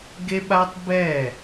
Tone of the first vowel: high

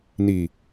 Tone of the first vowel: low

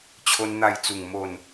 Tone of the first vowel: high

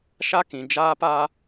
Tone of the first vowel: high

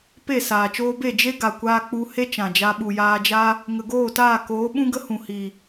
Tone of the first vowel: falling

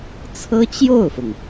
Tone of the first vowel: high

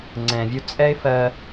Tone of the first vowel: low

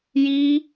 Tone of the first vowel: high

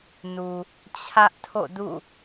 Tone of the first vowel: low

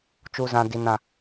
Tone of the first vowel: low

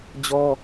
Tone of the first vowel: high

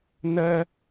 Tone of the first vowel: high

